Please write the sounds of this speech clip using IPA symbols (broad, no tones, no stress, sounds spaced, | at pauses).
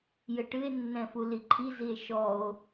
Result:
j ɘ ʈ ɨ e̯ nː ɛ̃ f u l i ǃʰ i z i e̯ ʃ ɔ o̯